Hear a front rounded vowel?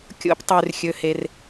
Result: yes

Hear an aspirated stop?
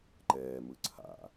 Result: yes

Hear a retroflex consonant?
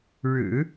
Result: yes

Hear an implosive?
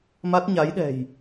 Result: yes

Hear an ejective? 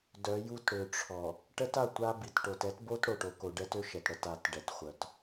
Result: no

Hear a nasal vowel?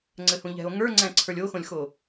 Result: yes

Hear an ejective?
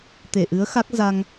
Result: no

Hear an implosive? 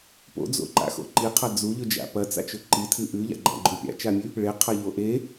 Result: no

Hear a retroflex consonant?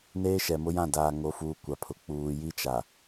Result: no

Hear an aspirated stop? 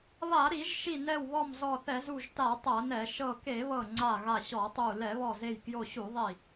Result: no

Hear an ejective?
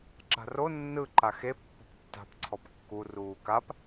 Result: no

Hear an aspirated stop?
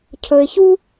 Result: yes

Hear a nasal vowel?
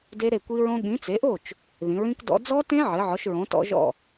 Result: yes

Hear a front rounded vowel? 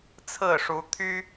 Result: yes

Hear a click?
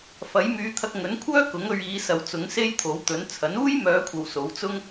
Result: no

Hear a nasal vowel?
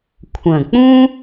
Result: yes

